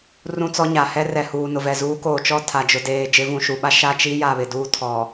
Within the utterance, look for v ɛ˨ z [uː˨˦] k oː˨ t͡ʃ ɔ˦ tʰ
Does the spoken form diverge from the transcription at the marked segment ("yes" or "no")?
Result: no